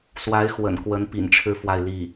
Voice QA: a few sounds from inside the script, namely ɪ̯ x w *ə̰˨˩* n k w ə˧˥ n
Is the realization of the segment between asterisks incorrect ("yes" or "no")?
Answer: no